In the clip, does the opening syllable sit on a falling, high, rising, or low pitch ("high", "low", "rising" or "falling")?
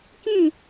falling